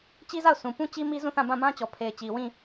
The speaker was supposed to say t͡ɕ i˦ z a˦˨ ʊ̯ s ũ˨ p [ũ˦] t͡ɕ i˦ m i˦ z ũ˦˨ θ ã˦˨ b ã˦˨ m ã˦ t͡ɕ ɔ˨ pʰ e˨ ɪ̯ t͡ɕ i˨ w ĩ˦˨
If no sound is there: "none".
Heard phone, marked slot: ũ˦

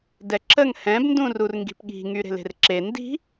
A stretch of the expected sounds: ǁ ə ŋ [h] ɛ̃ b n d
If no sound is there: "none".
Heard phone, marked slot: h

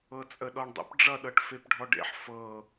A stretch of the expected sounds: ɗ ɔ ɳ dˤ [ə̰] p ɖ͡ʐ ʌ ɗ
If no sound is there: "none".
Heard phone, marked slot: ə̰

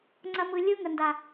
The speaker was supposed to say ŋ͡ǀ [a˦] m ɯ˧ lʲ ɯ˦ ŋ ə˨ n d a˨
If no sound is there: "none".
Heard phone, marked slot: ɐ˦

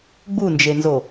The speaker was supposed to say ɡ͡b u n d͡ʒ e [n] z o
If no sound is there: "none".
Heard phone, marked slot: n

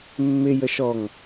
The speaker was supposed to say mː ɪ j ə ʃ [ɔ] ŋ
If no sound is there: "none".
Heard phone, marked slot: ɔ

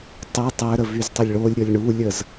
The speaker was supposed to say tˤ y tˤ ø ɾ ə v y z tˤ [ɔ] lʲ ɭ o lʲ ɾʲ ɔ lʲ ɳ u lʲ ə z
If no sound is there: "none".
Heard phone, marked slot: ə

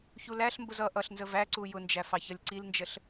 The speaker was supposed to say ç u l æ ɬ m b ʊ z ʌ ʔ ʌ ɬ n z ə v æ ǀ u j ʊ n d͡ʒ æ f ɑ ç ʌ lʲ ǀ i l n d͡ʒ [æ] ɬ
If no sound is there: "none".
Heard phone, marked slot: ə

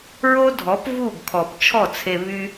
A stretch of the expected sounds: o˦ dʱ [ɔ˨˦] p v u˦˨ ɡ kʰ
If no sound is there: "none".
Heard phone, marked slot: ɔ˨˦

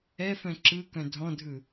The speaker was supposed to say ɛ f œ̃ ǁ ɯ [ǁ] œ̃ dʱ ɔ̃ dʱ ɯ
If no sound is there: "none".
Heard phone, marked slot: k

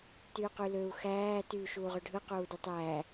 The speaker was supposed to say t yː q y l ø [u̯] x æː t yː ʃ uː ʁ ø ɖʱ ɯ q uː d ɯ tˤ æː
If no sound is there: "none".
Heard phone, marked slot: u̯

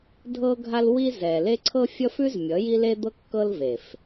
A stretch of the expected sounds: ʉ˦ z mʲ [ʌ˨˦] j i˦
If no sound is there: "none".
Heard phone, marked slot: ʌ˨˦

